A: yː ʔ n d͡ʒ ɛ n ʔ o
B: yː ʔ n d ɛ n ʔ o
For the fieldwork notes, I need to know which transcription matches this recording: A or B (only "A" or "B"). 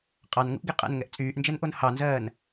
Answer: A